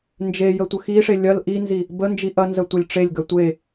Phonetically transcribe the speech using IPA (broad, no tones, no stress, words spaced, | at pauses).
nd͡ʒejə tʷəxiʂe lʲɐl ʔinzi | bənd͡ʒi ʔɐnzə tʷɐlʲʈ͡ʂelʲɡɐ tʷe